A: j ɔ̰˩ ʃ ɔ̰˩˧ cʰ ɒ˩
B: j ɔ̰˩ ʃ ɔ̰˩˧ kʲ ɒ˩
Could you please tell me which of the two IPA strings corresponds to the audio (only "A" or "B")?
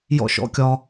B